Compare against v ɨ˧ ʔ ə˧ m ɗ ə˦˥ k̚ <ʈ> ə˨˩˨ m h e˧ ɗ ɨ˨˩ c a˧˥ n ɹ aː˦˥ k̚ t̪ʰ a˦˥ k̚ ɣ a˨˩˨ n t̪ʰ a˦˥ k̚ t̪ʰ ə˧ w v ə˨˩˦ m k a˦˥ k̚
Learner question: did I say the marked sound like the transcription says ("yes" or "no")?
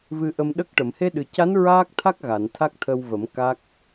yes